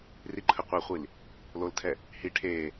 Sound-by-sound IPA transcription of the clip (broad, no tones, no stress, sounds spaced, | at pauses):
r i ǃʰ ə qʷ ɛ χʷ i l | l o l tʰ ɛ | h i ʈʰ eː